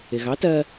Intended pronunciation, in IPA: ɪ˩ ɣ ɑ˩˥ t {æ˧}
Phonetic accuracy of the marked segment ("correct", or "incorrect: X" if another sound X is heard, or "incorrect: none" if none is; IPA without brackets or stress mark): incorrect: ɜ˧